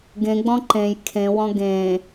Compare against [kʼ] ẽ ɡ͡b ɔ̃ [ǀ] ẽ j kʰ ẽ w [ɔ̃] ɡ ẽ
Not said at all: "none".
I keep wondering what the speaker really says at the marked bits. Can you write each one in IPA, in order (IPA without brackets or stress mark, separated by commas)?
ɡ, ǃ, ɔ̃